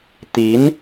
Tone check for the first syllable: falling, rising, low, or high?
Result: rising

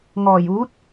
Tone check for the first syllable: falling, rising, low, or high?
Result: low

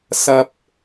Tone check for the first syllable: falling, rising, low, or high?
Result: low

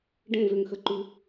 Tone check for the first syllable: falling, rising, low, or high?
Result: falling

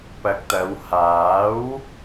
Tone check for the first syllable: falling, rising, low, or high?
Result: low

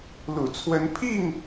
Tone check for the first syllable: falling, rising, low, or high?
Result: low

